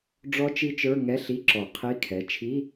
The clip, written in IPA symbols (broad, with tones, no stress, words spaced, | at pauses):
ɖ͡ʐɔ˦˥t͡ʃi˦˥t͡ʃə˞˧˥˧ ŋɛ˧˥˧ɬi˧˥˧ǁɔ˨˩˦ qʰi˧˥˧kʰɛ˩˧˩ t͡ʃʰi˧˥˧